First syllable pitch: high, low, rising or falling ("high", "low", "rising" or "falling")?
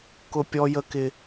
high